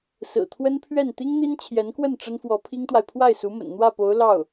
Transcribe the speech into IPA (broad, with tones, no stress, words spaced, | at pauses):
sɹ̩˨˩t̪ʰwə˥npʰɥɛ˥˩n t̪i˥ŋn̪i˥nt͡ɕʰjɛ˧˥nkwə˥˩n ʈ͡ʂə˥nfwɔ˧˥pʰi˥ŋt̪wa˨ɪ̯ pʰwa˥˩ɪ̯su˧˥mə̰˨˩n n̪wä˥˩po˧˥ʊ̯ lɑ˥˩ʊ̯